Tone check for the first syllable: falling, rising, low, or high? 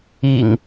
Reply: low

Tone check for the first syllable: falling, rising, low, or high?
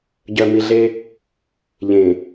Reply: low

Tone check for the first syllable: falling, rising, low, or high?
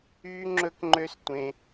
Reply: high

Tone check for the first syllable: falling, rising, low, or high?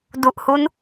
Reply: low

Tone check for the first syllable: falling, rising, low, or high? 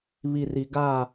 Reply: low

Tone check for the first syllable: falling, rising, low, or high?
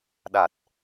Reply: low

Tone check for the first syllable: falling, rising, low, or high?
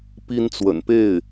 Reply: high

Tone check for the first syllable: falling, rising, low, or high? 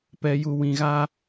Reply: high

